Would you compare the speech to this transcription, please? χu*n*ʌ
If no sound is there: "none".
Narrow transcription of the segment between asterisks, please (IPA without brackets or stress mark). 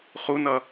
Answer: n